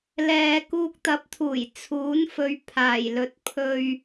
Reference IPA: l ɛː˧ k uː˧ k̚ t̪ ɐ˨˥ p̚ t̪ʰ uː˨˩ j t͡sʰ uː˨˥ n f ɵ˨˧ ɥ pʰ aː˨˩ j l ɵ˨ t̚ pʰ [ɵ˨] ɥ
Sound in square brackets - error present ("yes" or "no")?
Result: no